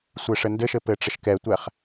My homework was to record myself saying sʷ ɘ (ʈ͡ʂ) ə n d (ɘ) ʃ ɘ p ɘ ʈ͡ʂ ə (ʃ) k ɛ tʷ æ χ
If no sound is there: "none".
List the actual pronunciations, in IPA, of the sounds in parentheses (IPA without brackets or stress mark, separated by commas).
ʂ, ɘ, ʃ